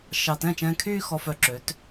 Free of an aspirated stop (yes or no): no